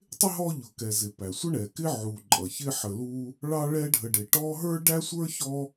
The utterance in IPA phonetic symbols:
tˤɪ˥ɦɔ˦ ʎʊ˨kɛ˨zɪ˨pæ˩ sʷə˥ɳɛ˩kɪ˥ ʕu˨ǃʼʌ˩ çɪ˥ħə˨lu˦ | ɭɑ˦ɭɛ˦ɖʱə˨ ɖɪ˨ʈɔ˥ ɦə˞˥ɖæ˥sʷə˞˥ çɔ˦

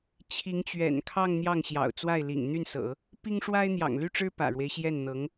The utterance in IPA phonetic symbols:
t͡ɕʰi˧˥ŋt͡ɕɥɛ̰˨˩nkʰɑ˥˧ŋ n̪jɑ˥˩ŋɕjɑ̰˨˩ʊ̯t͡swa˥˩ɪ̯lḭ˨˩ŋ n̪y˥˩nsɤ̰˨˩˦ | pi˥ŋ ʂwa˥ɪ̯n̪jɑ̰˨˩ŋly˥˩ʈ͡ʂɻ̩˥ pä̰˨˩ɻwe˦ɪ̯ɕjɛ˥˩nn̪ɤ˧˥ŋ

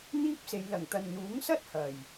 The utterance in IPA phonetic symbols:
n̪iː˥p̚se˨˧j lɐ˨˩ŋt̪ɐ˨nn̪uː˨˥ŋsɐ˥t̚ hɐ˨˩j

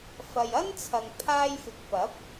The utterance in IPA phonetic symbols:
fɐ˨jɐ˥nt͡sʰɐ˨ŋ pʰaː˥jfɪ˧k̚ pɐ˨˥p̚

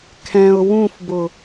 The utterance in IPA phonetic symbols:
kʰɛ̃ʊ̯ wũfbʊ

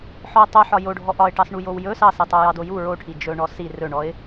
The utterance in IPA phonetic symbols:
ħɔə̯tˤɵħɒ joɖʱɔ ʔɒɪ̯ʈɑsɳu jowjɵ sɑsitˤo jɑdoju ɹoʈʰi d͡ʒɵʊ̯ɳɔsi rɵɳɔɪ̯

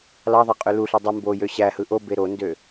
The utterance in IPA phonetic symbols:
lɑðˤe qʼøluɬi dˤu mbojø ɕæhɯ ʔobe ɾondø

